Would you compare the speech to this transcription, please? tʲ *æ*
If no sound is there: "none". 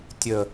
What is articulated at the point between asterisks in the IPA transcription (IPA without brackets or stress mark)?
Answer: ə